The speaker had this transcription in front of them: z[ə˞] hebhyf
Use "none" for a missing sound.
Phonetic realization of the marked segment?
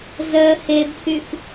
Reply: ɜ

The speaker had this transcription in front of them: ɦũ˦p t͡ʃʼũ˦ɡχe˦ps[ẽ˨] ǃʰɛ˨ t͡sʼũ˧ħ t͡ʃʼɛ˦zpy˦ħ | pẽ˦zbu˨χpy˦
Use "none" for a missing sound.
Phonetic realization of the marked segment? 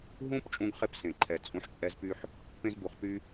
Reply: ẽ˨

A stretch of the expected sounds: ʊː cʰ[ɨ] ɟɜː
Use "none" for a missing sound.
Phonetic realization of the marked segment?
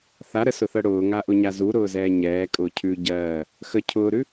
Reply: ʉ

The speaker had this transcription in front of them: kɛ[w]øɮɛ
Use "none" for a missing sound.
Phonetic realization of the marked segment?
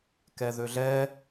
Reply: ð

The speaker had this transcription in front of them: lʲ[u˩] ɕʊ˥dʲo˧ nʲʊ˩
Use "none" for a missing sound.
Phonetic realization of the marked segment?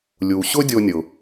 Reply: u˩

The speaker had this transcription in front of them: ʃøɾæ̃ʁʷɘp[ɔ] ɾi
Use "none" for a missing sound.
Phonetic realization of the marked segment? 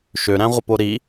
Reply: o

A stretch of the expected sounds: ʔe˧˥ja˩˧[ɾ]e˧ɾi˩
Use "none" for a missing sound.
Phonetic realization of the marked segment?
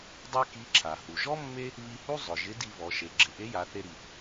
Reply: θ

